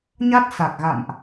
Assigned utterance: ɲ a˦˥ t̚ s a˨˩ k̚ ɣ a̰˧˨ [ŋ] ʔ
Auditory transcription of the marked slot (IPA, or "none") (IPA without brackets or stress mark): m